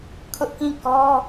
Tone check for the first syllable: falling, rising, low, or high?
high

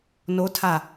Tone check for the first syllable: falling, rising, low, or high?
rising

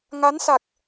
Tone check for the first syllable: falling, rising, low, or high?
rising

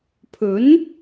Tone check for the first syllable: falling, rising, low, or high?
rising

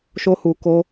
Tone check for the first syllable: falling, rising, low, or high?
high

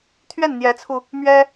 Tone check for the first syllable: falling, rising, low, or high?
falling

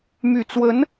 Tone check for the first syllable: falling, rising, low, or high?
low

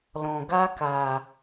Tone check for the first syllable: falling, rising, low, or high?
low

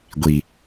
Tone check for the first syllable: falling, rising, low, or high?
low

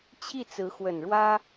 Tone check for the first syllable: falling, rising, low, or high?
falling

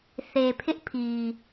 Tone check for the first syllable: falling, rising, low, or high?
low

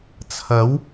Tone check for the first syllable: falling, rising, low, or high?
rising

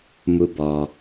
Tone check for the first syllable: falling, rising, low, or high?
high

